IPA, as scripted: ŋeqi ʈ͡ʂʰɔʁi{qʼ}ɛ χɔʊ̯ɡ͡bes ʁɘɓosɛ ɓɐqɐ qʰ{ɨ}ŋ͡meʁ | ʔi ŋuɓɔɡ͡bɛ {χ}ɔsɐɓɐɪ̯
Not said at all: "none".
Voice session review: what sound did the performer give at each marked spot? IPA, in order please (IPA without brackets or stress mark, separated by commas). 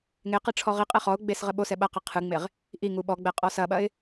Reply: qʼ, ɨ, qʼ